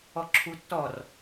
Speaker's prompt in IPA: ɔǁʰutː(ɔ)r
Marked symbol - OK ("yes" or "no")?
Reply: yes